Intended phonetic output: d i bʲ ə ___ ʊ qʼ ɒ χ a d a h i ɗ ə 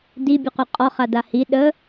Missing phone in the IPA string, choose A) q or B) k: A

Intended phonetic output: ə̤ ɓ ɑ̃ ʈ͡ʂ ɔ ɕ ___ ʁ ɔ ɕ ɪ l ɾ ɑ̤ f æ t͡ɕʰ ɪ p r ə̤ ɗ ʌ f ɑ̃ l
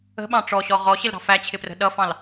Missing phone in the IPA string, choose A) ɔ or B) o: A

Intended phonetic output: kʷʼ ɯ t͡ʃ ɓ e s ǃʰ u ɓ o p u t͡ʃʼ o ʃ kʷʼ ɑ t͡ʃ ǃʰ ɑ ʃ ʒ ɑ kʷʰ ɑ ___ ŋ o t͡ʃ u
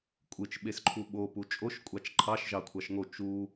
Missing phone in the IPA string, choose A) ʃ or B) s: A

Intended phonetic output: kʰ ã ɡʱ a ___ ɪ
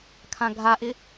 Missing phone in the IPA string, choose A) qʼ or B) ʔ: B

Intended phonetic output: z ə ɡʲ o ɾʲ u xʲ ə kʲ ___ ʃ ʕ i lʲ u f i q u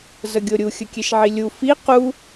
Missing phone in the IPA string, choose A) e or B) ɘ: A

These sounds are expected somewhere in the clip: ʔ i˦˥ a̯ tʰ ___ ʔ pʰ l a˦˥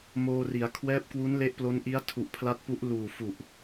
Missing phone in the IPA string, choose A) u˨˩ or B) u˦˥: A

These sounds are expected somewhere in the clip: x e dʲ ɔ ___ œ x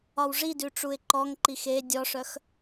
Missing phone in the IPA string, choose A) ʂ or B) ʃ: A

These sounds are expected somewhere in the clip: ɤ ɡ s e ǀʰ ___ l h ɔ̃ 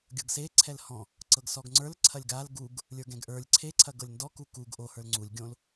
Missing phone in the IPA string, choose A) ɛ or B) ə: A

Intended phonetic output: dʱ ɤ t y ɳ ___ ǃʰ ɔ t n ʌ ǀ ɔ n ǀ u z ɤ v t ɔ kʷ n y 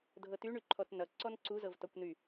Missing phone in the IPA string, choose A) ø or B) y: B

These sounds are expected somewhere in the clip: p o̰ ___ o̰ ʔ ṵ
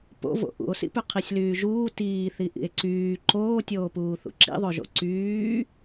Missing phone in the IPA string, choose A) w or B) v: B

